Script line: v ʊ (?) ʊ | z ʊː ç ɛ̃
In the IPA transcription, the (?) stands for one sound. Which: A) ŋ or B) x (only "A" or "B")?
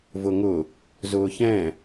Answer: A